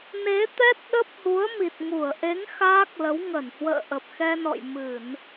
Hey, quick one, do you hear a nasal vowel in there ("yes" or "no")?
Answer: no